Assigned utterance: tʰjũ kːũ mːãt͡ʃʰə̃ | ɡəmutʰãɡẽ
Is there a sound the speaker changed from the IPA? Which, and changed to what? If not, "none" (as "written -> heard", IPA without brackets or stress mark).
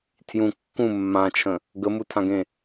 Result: none